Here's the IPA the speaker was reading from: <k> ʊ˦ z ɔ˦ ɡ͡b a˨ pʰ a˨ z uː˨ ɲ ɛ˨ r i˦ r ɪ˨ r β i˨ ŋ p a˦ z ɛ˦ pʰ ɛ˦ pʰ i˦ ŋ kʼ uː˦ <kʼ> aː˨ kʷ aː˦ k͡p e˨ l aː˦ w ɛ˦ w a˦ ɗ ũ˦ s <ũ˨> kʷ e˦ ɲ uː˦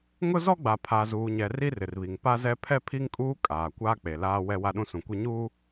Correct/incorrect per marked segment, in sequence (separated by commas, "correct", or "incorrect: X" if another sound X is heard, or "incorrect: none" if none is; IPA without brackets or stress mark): incorrect: ŋ, correct, correct